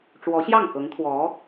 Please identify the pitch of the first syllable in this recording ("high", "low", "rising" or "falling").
rising